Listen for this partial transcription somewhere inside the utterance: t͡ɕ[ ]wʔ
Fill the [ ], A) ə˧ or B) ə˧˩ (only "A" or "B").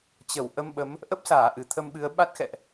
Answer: B